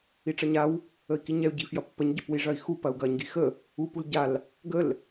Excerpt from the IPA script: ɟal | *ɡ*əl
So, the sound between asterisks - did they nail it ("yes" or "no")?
yes